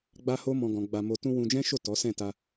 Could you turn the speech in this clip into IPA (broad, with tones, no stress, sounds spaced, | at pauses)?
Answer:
ɡ͡b a˦ h o˦ m ɔ̃˧ ɡ ɔ̃˧ ɡ͡b a˧ m o˧ t ũ˦ w ũ˧ d͡ʒ ɛ̃˦ ʃ o˦˨ t ɔ˨˦ s ɛ̃˦˨ t a˧